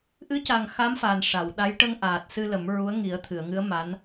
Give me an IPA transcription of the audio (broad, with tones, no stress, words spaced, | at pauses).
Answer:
ʔɨ˧˥ca˨˩ŋ xa˧˥mfa˨˩n ʂa˨˩˨wɗa˧˥j ʈə˧ŋʔaː˨˩t̚sɨ˧ lə˨˩˦m ɹu˧˥ə̯ŋi˨˩˦ə̯t̪ʰɨ˨˩˨ə̯ŋɨ˧˥ə̯ ma˧˥n